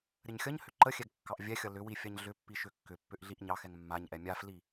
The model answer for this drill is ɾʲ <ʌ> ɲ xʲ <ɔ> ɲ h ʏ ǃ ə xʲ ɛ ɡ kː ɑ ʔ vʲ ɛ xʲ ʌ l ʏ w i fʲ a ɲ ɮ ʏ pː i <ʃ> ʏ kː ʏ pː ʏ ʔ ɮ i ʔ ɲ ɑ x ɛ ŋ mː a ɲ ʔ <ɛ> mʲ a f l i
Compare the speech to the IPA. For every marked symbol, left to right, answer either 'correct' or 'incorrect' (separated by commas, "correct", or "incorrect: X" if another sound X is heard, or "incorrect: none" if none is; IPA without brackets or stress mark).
incorrect: ə, incorrect: ʌ, correct, correct